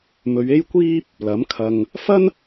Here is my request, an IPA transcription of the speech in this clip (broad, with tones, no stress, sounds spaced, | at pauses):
m ɵ˨˧ ɥ e˥ j kʷ iː˥ p̚ | l ɐ˨˥ m kʰ ɐ˧ ŋ | f ɐ˥ n